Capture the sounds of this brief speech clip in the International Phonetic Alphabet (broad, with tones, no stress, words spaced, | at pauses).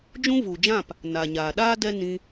d͡ʒũ˦vu˨d͡ʒã˦˨p | na˨ɲaː˨ɗaː˦ dɛ˦ nĩ˧